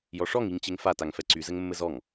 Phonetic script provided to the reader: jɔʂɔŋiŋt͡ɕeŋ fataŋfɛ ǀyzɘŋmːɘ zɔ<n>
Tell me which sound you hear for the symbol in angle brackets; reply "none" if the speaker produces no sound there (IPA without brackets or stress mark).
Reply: ŋ